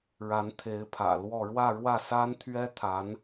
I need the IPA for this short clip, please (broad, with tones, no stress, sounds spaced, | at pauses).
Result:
ɻ a˧˥ n t̪ʰ e˧˥ ɪ̯ pʰ ä̰˨˩ l w ɔ˥˧ ɻ w ä˥˧ ɻ w ä˥˩ s a˥ n t̪ʰ ɥ ɛ˥ t̪ʰ a˧˥ n